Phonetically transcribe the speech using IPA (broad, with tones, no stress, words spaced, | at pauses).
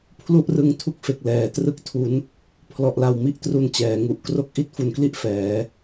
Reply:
pʰlu˥˩ʔrɯ˦˥ŋ tʰu˥˩k̚fe˨˩k̚ lɛː˨˩trɯ˥˩k̚tʰu˦˥n | pʰlɔ˨˩ʔla˨˩wmi˦˥ʔtru˨˩n t͡ɕɛː˩˦ŋu˨˩ʔkro˥˩k̚ ʔi˥˩t̚fu˨˩nkli˥˩ʔ fɛː˩˦